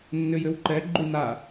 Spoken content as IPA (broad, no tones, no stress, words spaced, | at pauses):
nːʏjʏwǃɛ ɡ͡ǃyna